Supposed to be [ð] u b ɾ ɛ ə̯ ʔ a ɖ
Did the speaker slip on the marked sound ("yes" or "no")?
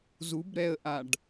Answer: yes